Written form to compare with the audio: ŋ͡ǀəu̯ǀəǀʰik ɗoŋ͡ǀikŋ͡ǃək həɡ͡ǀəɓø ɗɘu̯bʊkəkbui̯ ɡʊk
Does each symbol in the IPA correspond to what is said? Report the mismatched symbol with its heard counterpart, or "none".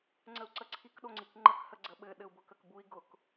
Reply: ø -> ɘ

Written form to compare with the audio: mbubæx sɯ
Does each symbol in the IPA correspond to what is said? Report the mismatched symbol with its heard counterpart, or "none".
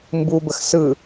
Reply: æ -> ə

